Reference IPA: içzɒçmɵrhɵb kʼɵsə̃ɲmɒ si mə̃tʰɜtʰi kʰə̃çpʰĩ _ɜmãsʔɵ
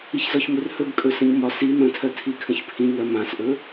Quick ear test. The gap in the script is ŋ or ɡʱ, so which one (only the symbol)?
ŋ